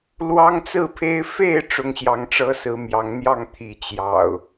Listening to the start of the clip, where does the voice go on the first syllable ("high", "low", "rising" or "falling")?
high